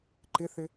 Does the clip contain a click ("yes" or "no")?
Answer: yes